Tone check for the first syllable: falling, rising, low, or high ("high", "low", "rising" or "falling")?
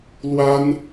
high